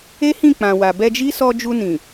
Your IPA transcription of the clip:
e˦ h ĩ˦˨ k͡p ã˨ w a˨ b ɛ˧ d͡ʒ i˦ s ɔ˧ d͡ʒ u˧ n ĩ˨

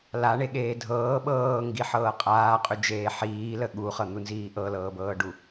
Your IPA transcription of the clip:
l a ɳ e ɠ eː dʱ ɤː ɓ ɤː ŋ ɡ i ħ ɤː qʼ aː qʼ ʏ d͡ʒ eː ħ iː l ə ɠ u χ ɤ n̪ u n z iː ʔ ɤ l ɤː b ɤː ɖ u

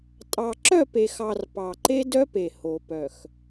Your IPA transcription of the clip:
tʼ ɑ˨ ǁ œ˦˨ p e˨ x ɑ˨ r p ɑ˨ ǃ e˦ d œ˦ p e˨ h o˨ p œ˨ x

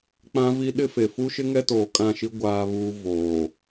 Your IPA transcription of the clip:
k͡p ã˦ v i˦ ɗ ɪ˦ f e˨ f u˦ ʃ ɪ˦ ŋ ɛ˦ t oː˨ kʼ ã˦˨ ʃ i˦ ɡʷ aː˦ β uː˦ v oː˨

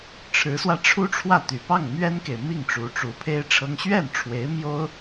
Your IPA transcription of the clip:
ʈ͡ʂʰ ɻ̩˧˥ s w ä˧ ʈ͡ʂʰ u˥ ʈ͡ʂʰ w ä˥˩ t̪ y˨˩ p ɑ˥˩ ŋ m ɥ ɛ˥ n k e˨ ɪ̯ m i˥˩ ŋ ʈ͡ʂ u˧˥ ʈ͡ʂ u˧˥ pʰ e˥ ɪ̯ ʈ͡ʂʰ ɤ˥ ŋ ɕ ɥ ɛ˥˩ n ʈ͡ʂʰ w e˧˥ ɪ̯ m j o˥ ʊ̯

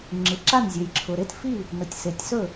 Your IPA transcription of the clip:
ŋ͡ǁ ɯ˨ ǁ a˥˨ n zʲ ø˨ j ǁʰ ʊ˨ ɾ e˥˨ t f i˥˨ | n ʊ˨ tʲ s e˨ tʲ s ɵ˥˨

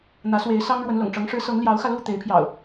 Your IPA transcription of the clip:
n̪ ä˨˦ s w e˨˦ ɪ̯ s ɑ˦ ŋ ɻ w ə˨˦ n l ʊ̰˨˩ ŋ ʈ͡ʂ ɤ˨˦ ŋ ʂ ɻ̩˨˦ s ɤ˨˦ ŋ l j ɑ˨˦ ʊ̯ x ä˧ l u˥˨ t̪ e˨˦ ɪ̯ pʰ j ɑ̰˨˩ ʊ̯

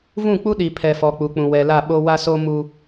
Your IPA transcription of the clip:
v ũ˦˨ k͡p u˦ ɗ i˨ pʰ ɛ˨ f ɔ˨ k͡p u˨ k͡p ũ˨ w ɛ˨ l a˦˨ ɓ o˦ w a˦ s o˦ m u˦

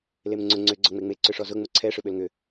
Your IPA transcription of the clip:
l e m ŋ͡ǀ ʊ ŋ͡ǀ ʏ ɡ͡ǀ ɔ ŋ͡m e ŋ͡m e ǀ ʏ ʂ ɔ z ʊ ŋ͡m ʊ ǀʰ ɛ ʂ ʏ ɓ ø l ŋ ʏ

